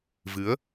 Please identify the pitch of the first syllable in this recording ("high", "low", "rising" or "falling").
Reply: rising